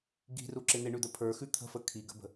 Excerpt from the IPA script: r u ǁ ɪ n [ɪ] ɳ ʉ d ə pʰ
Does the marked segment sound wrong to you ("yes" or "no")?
no